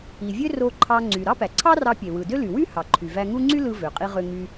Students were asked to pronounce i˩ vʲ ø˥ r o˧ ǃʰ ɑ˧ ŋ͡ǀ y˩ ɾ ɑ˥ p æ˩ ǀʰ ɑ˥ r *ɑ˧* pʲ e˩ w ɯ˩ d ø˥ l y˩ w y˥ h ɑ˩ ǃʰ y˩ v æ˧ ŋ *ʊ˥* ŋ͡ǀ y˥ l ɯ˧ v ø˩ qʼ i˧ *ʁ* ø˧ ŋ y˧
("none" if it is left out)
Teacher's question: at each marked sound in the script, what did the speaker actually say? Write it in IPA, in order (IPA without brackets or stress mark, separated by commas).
ɑ˧, u˥, ʁ